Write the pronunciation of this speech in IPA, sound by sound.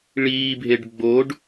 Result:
ɭ iː bʱ e ɖ ɡ͡b o ɖ

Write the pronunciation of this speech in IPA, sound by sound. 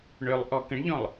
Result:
ɳ ø lˠ ʔ ɔ k ə̃ ɳ ʎ ɔ̃ lˠ

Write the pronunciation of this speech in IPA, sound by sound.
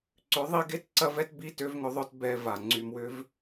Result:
ǀ ʏ˨˦ ðˤ i˧ ɡ e˦ t ǀ ɐ˦ v ɛ˦ t b i˦ t ø˧ v ŋ ʏ˧ ðˤ œ˧ t b ɛ˧ v a˨ ŋ͡ǀ y˨ m w ʏ˧ v

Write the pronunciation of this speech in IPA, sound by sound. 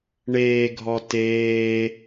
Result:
ɳ eː ɡʱ ɔ t eː

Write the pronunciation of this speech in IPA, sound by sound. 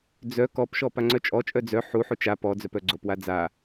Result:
d͡z œ k ɔ p ʃ ɔ p a ŋ͡ǀ œ t͡ʃʼ ɔ t͡ʃʼ œ d͡z œ ħ u ħ u t͡ʃ a p ɔ d͡z œ p œ ɡ͡ǀ o p w a d͡z a

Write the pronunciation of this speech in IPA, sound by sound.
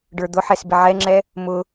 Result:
ɖ ə˞ d̪ ʊ ħ ɛ s b ɪ ʕ ɛ ŋ͡ǁ ɛ | m ʊ

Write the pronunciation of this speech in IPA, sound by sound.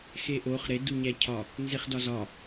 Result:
x e ʔ o χ ɾ e d u ɲ æ cʰ ɒ | n z e χ d ɒ z ɒ

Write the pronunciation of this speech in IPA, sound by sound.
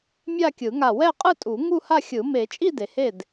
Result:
mʲ a˥˧ kʲ ɯ˨˩˦ ŋ a˧˩ w ɛ˥˧ qʼ ɯ˥˧ tʼ u˨˩˦ ŋ u˥˧ h a˥˧ xʲ ɯ˨˩˦ m e˨˩˦ t͡ʃʼ i˥˧ d e˩ h e˥˩ d

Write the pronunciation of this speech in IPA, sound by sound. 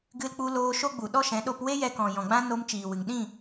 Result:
ɡ ɨ˧ l k͡p u˧ l oː˧ ʃ o˦ ɡ͡b u˨ ɗ ɔ˦ ʃ ɛ̃˨˦ ɗ o˧ p w e˦ j ɛ˧ k ɔ̃˨ j ɔ̃˨ ɡ͡b ã˦ n o˧ m t͡ʃ iː˨ w ɨ˨ ŋ ɗ ĩ˦˨

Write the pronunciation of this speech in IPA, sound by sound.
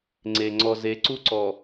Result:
ŋ͡ǀ e˨ ŋ͡ǀ ɔ˨ z e˨˦ ǀ u˦ ǀ ɔ˨

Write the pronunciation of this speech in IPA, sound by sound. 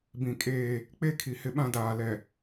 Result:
b ĩ˨ kʼ eː˦ | k͡p e˦ kʰ i˨ h ɪ˦ ɓ ã˦ d aː˨ l ɛ˨

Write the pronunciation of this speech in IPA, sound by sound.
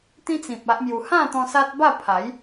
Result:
t̪ ĩ˦ t͡s ĩ˨ p̚ a˦ ʔ m j u˧ h ã˥˧ t̪ ɔ̃˧ s a˦ t̚ b a˥˧ pʰ a˨˦ j

